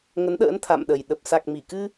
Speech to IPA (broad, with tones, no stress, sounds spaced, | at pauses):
ŋ ə˨˦ n ɗ ə̰ː˧˥ n t̪ʰ a̰˧˨ m ɗ ə˨˩ j ɗ ə˨˩ p̚ s a˨˩ k̚ m i˧˩ k ɨ˧